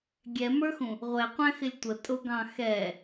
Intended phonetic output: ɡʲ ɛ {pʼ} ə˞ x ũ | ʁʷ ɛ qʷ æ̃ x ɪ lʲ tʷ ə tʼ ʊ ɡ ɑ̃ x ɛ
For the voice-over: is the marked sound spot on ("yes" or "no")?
no